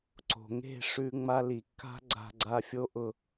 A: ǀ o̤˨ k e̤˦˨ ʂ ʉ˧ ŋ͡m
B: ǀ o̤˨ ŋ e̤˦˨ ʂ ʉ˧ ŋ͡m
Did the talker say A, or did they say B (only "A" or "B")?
B